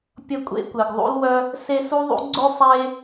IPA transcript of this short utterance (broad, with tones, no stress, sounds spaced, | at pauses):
pʲ ʌ˦ kʷʼ ḛ˦ kʷ e˨ ɡ ðˤ ṵ˥ l w œ˥ | s e˦ s u˥ ðˤ ṵ˥ ɡ͡ǀ ɵ˥ sˤ e˥